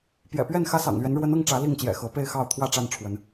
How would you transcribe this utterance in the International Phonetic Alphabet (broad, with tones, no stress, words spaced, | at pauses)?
pjɛ̰˨˩pɥɛ˥˨n xä˦sɑ̰˨˩ŋlɥɛ˨˦n ɻwə˨˦nɤ˥˨ŋ ʈ͡ʂä˨˦li˥˨ŋt͡ɕjɛ̰˨˩xɤ˨˦ pe˥˨ɪ̯xɑ˥˨ʊ̯t̪ʰwä˥˨ ʈ͡ʂa˥˨nʈ͡ʂʰwə˨˦n